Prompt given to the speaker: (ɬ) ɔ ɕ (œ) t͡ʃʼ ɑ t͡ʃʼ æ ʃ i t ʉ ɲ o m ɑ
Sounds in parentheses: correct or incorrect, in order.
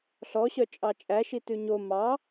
correct, correct

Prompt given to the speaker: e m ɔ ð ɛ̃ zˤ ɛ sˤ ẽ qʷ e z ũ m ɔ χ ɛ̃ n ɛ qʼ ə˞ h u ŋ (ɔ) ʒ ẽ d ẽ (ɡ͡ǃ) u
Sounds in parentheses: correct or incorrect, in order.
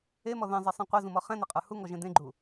correct, correct

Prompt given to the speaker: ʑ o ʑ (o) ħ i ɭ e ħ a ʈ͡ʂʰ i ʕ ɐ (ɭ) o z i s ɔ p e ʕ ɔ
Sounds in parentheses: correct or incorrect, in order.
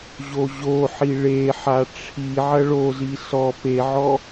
correct, correct

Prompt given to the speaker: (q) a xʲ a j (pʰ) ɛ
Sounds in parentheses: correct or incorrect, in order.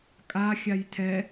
incorrect: kʼ, incorrect: tʰ

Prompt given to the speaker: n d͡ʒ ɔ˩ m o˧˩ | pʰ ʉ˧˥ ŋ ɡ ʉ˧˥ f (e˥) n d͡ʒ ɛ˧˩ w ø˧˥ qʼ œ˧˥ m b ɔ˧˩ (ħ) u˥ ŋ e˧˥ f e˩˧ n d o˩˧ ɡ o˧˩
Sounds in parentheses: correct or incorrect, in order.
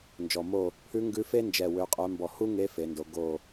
correct, incorrect: h

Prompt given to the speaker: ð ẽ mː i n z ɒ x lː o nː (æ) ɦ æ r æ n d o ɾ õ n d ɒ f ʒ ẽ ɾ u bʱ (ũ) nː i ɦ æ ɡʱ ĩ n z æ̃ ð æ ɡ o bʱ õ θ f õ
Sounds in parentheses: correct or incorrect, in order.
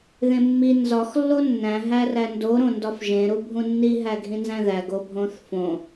incorrect: æ̃, correct

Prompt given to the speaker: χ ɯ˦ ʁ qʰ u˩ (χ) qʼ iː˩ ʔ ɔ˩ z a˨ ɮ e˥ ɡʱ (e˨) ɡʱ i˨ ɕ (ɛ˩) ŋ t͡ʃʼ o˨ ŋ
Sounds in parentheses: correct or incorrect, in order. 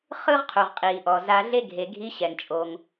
incorrect: ʁ, correct, correct

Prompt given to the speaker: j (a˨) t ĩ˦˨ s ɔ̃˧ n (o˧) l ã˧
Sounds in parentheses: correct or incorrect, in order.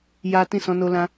incorrect: a˦, correct

